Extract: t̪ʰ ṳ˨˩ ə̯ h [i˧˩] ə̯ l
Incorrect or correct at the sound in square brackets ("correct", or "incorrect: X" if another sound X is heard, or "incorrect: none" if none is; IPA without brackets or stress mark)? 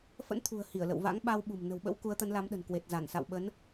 correct